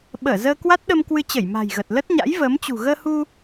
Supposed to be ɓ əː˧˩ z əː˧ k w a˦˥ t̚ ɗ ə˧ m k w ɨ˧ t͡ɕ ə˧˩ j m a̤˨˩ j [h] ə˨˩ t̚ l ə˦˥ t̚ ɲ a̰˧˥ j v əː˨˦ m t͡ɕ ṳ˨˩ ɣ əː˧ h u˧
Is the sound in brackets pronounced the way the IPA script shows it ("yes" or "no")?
no